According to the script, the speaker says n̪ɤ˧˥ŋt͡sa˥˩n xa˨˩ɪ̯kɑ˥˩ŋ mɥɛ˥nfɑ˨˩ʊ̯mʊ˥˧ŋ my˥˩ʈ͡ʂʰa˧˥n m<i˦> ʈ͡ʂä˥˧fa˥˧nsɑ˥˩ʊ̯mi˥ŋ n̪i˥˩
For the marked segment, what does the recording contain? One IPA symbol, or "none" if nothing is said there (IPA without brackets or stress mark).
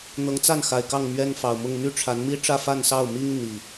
i˥